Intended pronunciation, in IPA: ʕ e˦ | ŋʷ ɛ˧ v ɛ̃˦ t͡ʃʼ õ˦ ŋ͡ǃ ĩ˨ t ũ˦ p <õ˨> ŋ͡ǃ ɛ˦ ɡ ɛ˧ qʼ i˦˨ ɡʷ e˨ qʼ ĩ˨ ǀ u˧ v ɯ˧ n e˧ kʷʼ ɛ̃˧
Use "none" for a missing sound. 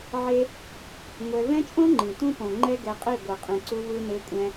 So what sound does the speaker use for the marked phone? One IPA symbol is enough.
õ˨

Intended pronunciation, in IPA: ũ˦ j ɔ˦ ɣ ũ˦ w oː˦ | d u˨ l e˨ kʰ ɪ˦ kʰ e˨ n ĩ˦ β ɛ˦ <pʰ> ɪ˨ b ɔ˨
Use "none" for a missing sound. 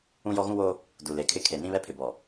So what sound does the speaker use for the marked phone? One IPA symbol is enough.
pʰ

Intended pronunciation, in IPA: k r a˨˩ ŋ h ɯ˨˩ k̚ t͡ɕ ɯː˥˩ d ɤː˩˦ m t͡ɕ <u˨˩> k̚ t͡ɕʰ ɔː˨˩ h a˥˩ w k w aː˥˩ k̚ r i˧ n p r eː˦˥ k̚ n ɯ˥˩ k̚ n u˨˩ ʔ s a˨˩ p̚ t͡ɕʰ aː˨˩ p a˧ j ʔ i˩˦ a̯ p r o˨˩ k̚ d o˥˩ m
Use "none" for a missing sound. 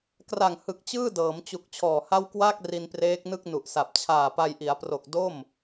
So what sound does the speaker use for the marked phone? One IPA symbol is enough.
u˨˩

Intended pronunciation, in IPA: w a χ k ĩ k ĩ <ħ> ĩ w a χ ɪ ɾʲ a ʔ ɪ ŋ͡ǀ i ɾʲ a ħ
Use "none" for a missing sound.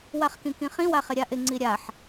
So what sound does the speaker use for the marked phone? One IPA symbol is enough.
χ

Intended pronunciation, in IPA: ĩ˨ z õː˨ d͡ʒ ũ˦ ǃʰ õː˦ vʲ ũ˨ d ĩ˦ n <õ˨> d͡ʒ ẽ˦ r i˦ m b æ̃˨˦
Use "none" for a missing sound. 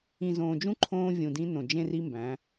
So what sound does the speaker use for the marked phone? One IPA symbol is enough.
õ˨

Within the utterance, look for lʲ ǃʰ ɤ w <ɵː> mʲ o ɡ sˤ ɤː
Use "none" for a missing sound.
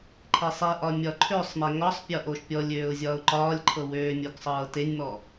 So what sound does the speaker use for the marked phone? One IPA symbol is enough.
øː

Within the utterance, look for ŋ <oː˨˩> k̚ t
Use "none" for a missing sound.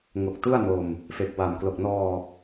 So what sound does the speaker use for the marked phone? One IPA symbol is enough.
o˨˩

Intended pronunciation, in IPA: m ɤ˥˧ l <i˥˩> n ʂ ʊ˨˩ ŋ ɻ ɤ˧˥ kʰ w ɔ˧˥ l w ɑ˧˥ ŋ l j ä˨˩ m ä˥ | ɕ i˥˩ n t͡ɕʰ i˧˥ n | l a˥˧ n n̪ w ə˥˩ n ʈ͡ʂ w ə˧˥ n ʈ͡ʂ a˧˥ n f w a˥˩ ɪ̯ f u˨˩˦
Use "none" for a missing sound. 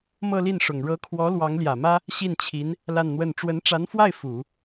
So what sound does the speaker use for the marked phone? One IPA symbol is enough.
i˥˩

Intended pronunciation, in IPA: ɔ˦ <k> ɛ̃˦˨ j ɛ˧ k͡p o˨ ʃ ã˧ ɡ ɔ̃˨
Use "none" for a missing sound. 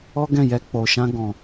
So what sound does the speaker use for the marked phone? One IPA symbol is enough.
ɡ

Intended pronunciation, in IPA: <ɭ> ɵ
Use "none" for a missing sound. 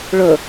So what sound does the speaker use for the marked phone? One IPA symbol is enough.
ɭ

